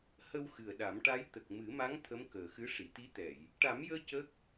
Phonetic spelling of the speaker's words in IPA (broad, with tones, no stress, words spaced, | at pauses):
hə˧w xɨ˨˩ə̯ɗa˨˩˦mʈa˧˥j t̪ə˨˩k̚mɨ˨˩˦ma˧˥ŋ t̪ʰə˧˥mkəː˨˩xɨ˧˥ ʂi˨˩˨t̪i˧˥t̪ɛ˨˩˨j | ʈa˨˩˦mjəː˧ cə˦˥k̚